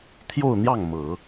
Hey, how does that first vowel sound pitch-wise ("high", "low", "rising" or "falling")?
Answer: falling